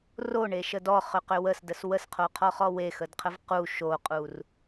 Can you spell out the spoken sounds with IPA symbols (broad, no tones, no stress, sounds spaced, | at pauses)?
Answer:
r o ɳ e ʃ ə d ɔ χ ʏ q ʏ w ə s d ə s w ə s qʰ o qʰ ɔ χ ɔ w e x ə d qʰ ə v q u ʃ o qʼ u r